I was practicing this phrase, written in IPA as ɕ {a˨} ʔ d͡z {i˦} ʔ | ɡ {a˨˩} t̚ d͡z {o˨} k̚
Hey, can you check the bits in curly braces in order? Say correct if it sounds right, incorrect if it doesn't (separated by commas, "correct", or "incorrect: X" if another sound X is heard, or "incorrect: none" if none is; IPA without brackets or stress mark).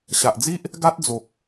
correct, correct, incorrect: a˦, correct